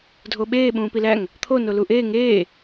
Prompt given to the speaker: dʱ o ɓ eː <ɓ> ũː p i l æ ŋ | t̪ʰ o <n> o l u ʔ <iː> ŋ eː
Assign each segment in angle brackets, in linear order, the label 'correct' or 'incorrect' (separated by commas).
correct, correct, incorrect